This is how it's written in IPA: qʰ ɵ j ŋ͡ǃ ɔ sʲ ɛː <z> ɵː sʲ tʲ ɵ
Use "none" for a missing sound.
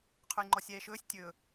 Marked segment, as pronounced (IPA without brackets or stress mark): ʃ